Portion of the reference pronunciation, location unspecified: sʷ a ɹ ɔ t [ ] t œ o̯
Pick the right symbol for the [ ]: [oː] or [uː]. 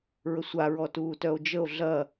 uː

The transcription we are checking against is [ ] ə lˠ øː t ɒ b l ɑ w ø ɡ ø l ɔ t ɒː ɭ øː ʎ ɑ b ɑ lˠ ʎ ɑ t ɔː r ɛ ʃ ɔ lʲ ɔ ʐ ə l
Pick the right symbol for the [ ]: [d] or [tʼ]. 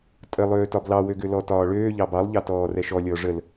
tʼ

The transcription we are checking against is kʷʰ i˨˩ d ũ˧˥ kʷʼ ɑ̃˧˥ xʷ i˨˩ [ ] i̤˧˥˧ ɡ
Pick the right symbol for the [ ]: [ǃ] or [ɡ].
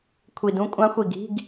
ɡ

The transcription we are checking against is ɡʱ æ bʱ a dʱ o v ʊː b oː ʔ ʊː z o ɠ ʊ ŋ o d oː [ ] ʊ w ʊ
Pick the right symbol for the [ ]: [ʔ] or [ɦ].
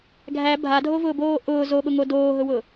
ɦ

